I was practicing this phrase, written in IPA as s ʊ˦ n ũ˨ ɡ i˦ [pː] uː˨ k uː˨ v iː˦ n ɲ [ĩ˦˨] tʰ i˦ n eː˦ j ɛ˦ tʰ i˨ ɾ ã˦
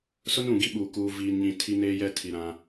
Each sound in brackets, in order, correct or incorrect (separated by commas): incorrect, correct